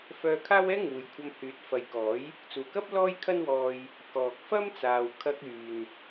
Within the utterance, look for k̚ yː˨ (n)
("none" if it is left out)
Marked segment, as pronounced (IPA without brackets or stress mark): n